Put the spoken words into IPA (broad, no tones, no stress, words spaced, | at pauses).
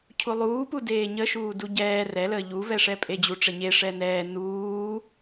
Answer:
cʰulˠuːpudeː ɲə ʃuːduɟɛː rɛləː ʎuvɛʂɛ pʼed͡ʑuʈ͡ʂəɲe ʂɛnɛː nuː